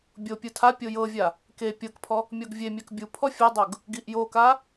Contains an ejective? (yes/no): no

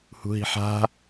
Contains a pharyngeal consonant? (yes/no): yes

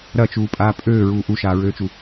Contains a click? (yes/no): no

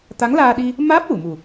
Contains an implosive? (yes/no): yes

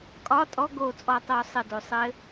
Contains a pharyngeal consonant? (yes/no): no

